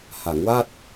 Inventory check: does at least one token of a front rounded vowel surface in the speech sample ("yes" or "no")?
no